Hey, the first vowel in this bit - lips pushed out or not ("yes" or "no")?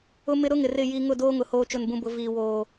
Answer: yes